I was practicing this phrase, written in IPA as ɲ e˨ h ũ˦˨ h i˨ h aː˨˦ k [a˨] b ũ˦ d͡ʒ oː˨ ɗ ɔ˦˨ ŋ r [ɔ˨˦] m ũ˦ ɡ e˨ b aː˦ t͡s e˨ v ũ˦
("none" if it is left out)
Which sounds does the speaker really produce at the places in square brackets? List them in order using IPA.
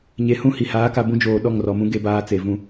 a˨, ɔ˨

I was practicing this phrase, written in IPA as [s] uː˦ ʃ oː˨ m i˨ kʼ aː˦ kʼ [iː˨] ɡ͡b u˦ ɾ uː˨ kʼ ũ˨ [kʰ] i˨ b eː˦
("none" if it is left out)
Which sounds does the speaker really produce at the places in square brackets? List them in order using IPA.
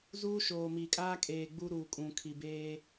z, eː˨, kʰ

